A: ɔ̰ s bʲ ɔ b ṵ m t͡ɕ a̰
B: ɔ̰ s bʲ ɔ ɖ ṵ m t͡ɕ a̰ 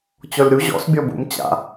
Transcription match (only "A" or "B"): A